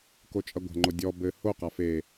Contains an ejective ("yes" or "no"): yes